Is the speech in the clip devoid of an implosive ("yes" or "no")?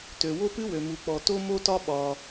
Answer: no